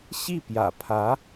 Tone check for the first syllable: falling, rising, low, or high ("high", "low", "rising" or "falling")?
falling